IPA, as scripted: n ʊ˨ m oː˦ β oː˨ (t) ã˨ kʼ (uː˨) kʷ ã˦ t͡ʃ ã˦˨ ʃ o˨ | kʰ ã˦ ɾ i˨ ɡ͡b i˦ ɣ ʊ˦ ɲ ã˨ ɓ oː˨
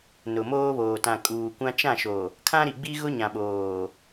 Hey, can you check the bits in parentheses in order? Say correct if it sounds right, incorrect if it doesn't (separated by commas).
correct, correct